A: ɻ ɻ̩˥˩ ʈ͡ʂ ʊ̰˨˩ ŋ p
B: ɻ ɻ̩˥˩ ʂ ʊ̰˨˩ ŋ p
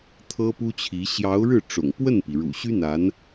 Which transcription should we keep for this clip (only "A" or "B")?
A